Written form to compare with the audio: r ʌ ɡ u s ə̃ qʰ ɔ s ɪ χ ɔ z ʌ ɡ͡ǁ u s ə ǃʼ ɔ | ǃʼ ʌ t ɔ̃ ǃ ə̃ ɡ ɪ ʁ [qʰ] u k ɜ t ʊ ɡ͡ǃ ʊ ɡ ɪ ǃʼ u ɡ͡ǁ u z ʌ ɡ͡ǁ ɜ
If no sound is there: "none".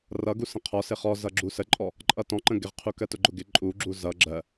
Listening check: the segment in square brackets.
qʰ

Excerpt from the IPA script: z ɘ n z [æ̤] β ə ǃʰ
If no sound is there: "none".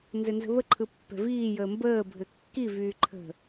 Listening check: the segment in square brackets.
ə̤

